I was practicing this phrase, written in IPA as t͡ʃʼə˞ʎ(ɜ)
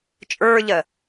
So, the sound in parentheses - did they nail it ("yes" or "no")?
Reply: yes